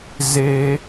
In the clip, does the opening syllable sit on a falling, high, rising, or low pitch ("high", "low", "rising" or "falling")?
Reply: high